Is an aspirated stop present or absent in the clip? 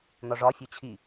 present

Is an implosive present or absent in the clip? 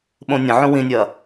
present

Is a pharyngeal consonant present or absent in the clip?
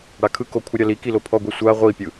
absent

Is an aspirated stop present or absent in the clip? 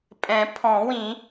present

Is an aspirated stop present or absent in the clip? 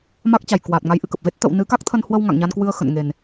present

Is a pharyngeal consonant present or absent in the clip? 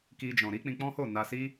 absent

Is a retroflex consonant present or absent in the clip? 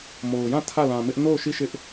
absent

